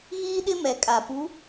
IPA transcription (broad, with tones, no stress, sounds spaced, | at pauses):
ɣ iː˦ ɗ ɪ˦ m ɛ˨ kʼ a˨ p u˨˦